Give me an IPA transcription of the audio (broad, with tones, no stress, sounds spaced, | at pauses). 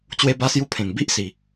t͡ɕ w e˧ b a˧ s j u˧ pʰ ẽ˨˩ ŋ b i˦ ʔ s i˨˩